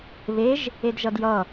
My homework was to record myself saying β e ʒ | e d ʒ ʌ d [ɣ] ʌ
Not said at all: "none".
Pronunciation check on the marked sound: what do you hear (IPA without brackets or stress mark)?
j